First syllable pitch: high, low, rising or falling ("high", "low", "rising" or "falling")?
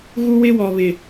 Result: high